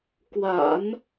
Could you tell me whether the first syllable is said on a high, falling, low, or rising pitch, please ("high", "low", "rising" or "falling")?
low